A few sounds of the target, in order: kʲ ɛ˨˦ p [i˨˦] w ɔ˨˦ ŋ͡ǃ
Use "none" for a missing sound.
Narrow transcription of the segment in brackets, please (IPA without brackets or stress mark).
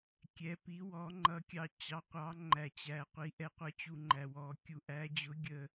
i˨˦